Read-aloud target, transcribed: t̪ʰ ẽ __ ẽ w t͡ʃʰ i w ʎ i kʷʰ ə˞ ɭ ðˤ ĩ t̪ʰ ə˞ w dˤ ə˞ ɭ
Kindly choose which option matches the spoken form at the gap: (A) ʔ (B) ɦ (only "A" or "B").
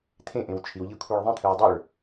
A